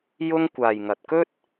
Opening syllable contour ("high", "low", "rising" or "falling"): high